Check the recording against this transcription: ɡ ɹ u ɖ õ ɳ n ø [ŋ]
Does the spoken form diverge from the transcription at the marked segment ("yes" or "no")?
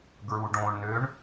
yes